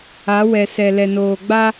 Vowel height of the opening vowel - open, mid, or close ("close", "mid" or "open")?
open